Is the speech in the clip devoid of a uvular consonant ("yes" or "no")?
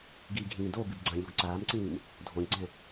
yes